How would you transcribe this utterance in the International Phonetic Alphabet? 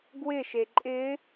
ɡ w ɪ ʃ e ǃʼ ɪ

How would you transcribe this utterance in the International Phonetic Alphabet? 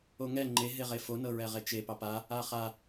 o ŋ ɛ ŋ͡ǃ e ɦ e ʁ e f o n ɤ ɹ ɛ ʁ e t͡ʃ e p ɑ p a | a χ a

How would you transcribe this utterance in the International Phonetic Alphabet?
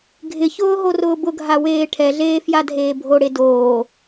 ɡʱ ɪ ç ʊː ɦ o r ʊː b ʊ ɡʱ a w eː ʈʰ ɛ ɮ eː f j a dʱ eː bʱ o ɽ e d oː

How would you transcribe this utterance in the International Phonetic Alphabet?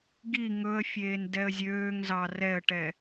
ɡ i ŋ ɵ ə̯ fʲ eː n d ɛ ə̯ zʲ øː ŋ z ɑ r ɛ ə̯ ʈ ɛ

